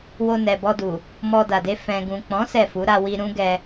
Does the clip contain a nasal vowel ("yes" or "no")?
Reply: yes